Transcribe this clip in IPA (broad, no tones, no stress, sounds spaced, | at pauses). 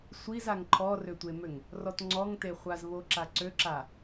sʷ i z a ŋ ǃʰ ɔ r ø tʷ e m ø ŋ | r ɔ t ŋ͡ǀ ɔ ŋ t e χʷ a z β o ǁ a ǀ ø ǁ a